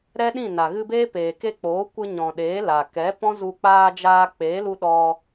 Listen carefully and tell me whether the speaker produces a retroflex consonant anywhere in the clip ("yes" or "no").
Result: no